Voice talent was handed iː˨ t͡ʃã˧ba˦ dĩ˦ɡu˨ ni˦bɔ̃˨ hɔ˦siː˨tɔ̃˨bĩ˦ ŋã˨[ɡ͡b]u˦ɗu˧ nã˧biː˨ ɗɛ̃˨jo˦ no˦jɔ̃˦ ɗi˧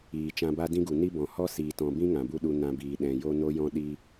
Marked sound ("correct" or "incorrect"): incorrect